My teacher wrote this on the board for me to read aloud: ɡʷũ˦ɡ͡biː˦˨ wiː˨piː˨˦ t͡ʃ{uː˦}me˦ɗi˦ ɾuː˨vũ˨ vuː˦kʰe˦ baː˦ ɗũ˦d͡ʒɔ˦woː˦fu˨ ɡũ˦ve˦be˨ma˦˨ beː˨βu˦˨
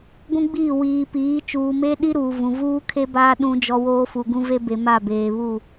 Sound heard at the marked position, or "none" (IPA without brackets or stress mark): uː˨